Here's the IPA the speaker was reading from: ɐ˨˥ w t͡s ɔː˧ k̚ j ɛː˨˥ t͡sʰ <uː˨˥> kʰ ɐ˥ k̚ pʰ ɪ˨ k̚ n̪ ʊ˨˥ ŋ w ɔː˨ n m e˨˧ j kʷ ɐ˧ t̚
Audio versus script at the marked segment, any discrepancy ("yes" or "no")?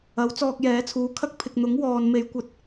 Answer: no